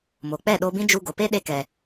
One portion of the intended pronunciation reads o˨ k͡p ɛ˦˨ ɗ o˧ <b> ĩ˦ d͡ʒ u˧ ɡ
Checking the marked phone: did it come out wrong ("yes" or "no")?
no